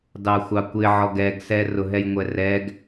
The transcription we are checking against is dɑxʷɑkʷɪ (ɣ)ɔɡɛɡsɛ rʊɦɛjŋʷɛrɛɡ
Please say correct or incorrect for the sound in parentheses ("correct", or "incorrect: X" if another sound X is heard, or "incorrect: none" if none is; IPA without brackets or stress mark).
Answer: incorrect: ʕ